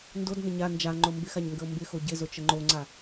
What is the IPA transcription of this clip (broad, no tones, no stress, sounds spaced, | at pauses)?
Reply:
n d o d n ə ɲ a n d͡ʒ a ŋ͡ǃ o m b ɪ x a ɲ ŋ ɡ ə o̯ m b ɪ x o ɟ ɪ z o t͡ʃ ə ŋ͡ǃ o ŋ͡ǀ a